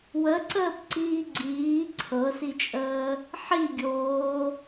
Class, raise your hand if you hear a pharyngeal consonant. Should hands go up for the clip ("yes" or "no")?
yes